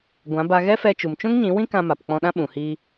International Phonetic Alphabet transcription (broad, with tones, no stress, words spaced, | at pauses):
ɡʷã˨˦ba˧ ɣɛ˦fɛ˧t͡ʃu˨m t͡ʃũ˦ŋɲĩ˨˦wĩ˦ kã˧ma˨pk͡pɔ̃˧ɗã˦ ɓũ˨hiː˧